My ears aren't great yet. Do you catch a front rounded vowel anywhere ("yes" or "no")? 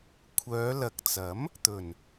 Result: yes